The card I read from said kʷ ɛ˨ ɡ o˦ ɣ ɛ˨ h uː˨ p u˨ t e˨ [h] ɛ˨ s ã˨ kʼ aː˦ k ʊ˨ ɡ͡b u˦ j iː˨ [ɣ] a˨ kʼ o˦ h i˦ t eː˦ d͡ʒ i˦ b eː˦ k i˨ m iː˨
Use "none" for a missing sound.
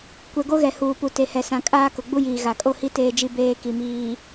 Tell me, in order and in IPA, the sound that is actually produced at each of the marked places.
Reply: h, ɣ

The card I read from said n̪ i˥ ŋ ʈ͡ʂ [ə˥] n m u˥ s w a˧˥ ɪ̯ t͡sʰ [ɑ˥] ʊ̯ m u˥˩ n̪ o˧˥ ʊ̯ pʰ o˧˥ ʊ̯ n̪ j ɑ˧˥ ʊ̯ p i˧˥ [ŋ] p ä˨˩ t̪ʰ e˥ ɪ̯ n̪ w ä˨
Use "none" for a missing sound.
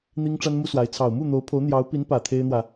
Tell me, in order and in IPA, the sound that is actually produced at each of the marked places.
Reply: a˥, ɑ˨˩, n

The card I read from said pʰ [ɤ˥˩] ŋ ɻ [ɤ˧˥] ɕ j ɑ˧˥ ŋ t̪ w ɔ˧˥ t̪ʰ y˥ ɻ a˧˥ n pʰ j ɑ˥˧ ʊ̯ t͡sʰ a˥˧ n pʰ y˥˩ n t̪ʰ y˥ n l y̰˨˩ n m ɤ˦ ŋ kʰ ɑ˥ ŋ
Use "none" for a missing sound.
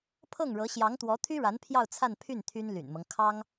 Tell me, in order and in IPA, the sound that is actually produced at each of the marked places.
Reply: ɤ˥˩, ɤ˧˥

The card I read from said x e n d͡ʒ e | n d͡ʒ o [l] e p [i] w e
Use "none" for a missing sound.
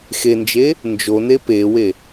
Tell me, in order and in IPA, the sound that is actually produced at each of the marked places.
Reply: n, e

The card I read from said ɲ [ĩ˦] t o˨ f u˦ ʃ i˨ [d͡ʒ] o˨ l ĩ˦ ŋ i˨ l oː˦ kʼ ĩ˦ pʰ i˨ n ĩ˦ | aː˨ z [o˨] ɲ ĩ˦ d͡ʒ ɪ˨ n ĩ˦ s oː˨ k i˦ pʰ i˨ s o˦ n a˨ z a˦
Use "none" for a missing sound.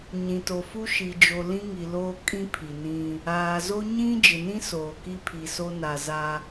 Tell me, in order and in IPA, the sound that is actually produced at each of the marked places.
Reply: ĩ˨, d͡ʒ, o˦

